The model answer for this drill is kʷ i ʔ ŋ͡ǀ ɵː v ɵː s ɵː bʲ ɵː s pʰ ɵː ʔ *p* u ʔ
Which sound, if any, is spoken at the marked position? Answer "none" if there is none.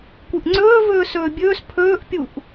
pʲ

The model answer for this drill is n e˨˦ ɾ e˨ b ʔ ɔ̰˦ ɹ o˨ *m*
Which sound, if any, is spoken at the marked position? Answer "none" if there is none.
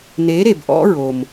m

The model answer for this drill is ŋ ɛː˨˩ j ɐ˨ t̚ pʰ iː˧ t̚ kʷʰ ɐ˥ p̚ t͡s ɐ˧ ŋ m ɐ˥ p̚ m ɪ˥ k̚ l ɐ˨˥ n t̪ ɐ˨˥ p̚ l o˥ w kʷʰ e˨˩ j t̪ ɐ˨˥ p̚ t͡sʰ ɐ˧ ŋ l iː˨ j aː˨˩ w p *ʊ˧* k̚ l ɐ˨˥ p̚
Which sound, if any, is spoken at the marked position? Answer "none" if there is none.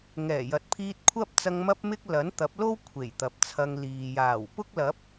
ʊ˥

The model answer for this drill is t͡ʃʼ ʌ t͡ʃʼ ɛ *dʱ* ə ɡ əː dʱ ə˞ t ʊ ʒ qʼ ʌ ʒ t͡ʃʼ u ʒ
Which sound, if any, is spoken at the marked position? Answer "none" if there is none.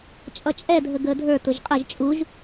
dʱ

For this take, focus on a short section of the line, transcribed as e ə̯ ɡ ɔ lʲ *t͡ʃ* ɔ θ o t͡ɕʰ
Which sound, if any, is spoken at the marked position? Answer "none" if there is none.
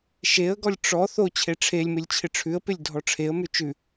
ʈ͡ʂ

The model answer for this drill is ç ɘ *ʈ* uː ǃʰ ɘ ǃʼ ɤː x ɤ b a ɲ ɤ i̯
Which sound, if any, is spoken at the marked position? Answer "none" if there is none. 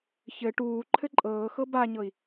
ʈ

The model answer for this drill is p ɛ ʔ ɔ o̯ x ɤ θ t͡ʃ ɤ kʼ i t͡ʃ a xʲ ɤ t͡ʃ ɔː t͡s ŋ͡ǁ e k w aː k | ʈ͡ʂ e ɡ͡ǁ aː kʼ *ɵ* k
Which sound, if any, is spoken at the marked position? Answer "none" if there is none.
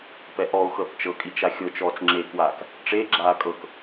ɤ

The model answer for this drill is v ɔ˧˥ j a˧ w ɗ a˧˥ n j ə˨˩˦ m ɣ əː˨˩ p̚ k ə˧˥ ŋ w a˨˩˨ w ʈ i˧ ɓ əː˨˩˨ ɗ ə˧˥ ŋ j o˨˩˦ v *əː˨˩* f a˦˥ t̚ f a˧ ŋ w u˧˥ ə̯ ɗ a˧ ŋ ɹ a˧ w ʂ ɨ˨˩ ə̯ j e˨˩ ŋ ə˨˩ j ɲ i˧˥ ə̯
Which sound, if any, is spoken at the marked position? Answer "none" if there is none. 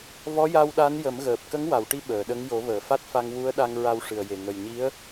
əː˨˩˨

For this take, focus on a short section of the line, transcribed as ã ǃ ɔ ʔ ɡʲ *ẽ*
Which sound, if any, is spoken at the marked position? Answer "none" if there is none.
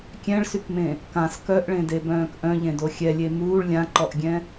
ɛ̃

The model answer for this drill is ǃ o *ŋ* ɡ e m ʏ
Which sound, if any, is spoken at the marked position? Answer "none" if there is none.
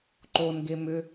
n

